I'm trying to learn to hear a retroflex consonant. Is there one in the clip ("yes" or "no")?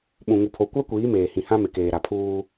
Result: no